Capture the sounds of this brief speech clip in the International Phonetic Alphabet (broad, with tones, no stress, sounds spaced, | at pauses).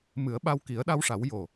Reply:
m ɨ˨˩˦ ə̯ ɓ a˧ w k i˨˩˦ ə̯ ɗ a˧ w ʂ a˨˩˦ w j o˨˩